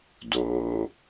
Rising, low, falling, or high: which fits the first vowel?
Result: low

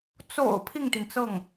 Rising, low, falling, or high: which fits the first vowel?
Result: low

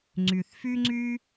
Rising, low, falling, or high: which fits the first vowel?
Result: low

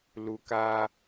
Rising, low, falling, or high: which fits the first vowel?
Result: low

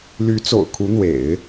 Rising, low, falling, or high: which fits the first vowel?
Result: rising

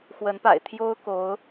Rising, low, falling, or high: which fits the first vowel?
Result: rising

